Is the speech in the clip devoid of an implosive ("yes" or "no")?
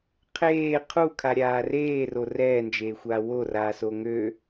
yes